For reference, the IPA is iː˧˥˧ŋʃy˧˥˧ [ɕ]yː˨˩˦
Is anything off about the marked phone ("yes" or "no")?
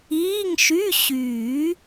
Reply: no